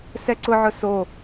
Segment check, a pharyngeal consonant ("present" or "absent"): present